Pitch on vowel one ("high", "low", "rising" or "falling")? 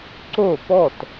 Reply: falling